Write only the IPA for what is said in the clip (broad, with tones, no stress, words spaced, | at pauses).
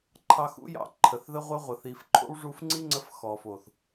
ǃʰɑ˧xṵ˦jɑ̰˧ ǃʰə˨θðə˦ʁʷœ˦ ʁʷə˨ θi˨f ǃʰo̰˦wʐu˧fŋ͡ǀi˦ŋ͡ǀə˧f xɔ˨fo˨θ